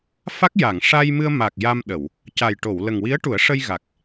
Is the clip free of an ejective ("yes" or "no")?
yes